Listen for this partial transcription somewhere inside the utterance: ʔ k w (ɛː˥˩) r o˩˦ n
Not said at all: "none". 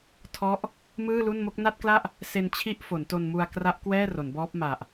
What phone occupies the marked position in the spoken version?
ɛː˥˩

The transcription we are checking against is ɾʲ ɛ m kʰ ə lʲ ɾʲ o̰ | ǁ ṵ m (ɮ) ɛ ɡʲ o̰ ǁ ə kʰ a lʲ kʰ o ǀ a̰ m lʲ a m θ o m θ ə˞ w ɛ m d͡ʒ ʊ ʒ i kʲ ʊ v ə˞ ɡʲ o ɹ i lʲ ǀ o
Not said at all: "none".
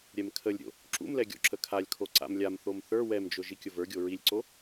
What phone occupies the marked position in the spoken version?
l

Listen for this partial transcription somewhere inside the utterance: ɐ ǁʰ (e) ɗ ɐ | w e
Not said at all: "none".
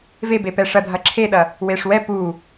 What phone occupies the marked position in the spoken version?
e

